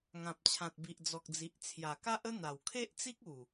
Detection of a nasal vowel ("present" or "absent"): present